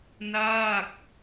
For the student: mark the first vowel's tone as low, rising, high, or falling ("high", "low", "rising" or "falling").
falling